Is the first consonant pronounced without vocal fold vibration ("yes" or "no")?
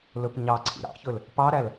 no